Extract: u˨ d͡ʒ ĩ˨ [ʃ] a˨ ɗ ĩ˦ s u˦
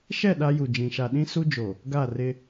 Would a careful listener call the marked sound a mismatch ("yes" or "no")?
no